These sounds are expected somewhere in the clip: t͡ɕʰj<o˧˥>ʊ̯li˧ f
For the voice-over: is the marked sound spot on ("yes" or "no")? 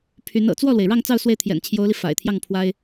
yes